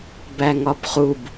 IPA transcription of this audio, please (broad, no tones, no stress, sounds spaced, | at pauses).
b æ ŋ ɒ b χ u b